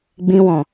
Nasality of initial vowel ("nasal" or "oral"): nasal